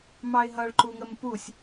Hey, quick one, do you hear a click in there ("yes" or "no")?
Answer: yes